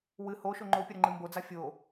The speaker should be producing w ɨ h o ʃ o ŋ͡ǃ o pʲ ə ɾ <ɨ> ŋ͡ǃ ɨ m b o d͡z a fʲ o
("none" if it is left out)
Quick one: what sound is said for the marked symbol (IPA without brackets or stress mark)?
ə